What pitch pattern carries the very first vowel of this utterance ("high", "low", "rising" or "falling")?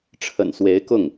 low